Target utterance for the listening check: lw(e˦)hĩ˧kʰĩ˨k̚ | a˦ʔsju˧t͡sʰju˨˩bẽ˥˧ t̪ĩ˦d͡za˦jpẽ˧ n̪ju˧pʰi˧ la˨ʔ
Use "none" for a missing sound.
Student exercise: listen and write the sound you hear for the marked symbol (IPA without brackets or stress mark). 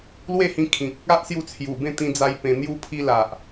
e˥˧